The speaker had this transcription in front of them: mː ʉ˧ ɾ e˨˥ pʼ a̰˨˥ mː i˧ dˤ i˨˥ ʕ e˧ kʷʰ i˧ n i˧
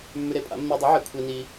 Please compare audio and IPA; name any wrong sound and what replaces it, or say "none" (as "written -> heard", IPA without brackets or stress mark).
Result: none